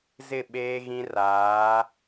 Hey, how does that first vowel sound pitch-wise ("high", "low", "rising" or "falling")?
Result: falling